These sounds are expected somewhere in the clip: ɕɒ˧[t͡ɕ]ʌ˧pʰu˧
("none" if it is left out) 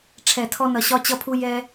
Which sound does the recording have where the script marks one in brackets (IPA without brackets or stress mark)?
t͡ɕ